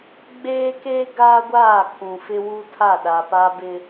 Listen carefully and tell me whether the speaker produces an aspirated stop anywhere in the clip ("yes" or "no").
yes